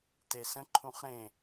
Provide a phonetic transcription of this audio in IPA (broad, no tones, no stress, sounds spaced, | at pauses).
t e s ə̃ ǃʰ ũ χ ɾ ẽ